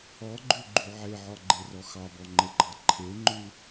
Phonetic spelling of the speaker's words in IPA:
ɔɡ͡ǃʉɡ͡ǃy ʕeʕɔɡ͡ǃerɔ xɑbɔŋ͡ǃeɡ͡ǃɑ ǃʰeŋ͡ǃʉ

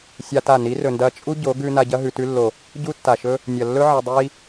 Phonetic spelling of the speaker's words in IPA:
sʲa˦ta˦˨ ni˨˦rɵ˨ndɐ˧ t͡ʃʼu˦ɟo˨˦ ɡʉ˧ na˧ɟɐ˦ ɦʉ˨tʉ˧lːo˨ | ɟu˦tːa˨ʃɵ˦ | nʲɐ˨lːɵ˦ ʕɐ˧dˤi˦

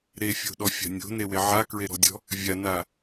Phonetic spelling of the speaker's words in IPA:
ɾefʲo̤ɗɔfʲa̤ nʲo̤newe ʕakɹeɾɔ̤dʲɔ̤ | vʲana

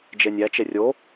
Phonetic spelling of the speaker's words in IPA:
d͡ʒenʲæt͡ʃe rʲo

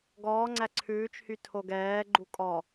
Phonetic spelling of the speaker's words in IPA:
ɡɔːŋ͡ǀæ ǀʰʉːt͡ʃhy tʰoɡɛːɡ͡ǃu kʼɔ

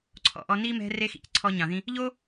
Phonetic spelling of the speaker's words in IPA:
ǀʰɔ̰˨ʔɔ˧ ni˦ mɛ̤˦re˦ xḭ˨cǀʰɔ˧ ɲɑ̃˨ðĩ˧ | ʎo˦

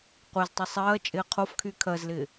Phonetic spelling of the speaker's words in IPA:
qʷeztˤə sˤɜː t͡ʃʼɪːqʰofkʰy kʰɜzlɪː

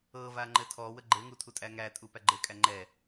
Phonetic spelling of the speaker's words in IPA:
ɤva ŋ͡ǃɘtʰɔwə ɡ͡ǃɘŋu tʰutʼæŋætʼu pæɡ͡ǃɘkʼæ ŋ͡ǃɛ

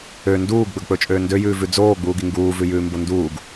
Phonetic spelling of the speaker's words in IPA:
ø nduːɡɡ͡bɵɡk͡pɵt͡ʃʼøː ndøjʉːvʉ d͡zoːɡ͡buːɡi ŋɡuːvʉjʉːmbo nduːɡ

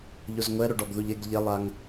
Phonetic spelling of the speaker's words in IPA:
ʎozŋʷɛ ɾoɖɔɡðuʎeɡ ʎɛlˠaŋ

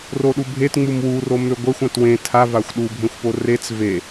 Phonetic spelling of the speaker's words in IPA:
roɗubʱetŋ͡mum wuro møɡʷɛxʷ ãtwẽ tʰavaxʷ ɗubʱẽxʷpo ret͡s ve

